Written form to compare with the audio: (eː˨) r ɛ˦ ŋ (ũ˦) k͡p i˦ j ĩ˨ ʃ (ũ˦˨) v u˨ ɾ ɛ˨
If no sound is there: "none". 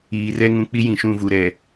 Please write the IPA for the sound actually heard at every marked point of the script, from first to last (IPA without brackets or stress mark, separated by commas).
iː˨, ũ˨, ũ˦˨